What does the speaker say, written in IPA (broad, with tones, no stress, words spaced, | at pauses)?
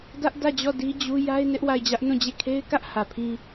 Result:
dä˦ʔdä˦˨d͡ʑɔ˦˨ di˦d͡ʑu˦ ja˦ɪ̯ nɪ˦ʔwa˦˨ɪ̯d͡ʑä˦ʔ nũ˦˨d͡ʑe˦˨ kʰe˦ɪ̯kä˦ʔ hä˨pʰĩ˦